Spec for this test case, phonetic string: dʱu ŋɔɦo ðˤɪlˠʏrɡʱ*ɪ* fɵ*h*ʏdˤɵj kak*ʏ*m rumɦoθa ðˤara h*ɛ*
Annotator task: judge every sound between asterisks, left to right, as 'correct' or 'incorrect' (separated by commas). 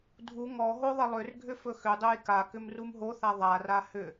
incorrect, incorrect, correct, incorrect